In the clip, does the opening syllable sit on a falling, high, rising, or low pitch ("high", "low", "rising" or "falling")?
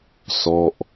falling